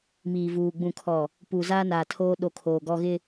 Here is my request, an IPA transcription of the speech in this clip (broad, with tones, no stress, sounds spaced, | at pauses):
m iː˨ v uː˨ ɡ͡b ũ˨ kʰ ɔ˨ | p u˨ z aː˦ n aː˨ tʰ oː˦ ɗ o˦ kʰ oː˨ ɡ ɔ˦ ɣ ɪ˦